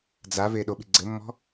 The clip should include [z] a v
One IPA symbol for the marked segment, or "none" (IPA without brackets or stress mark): d͡z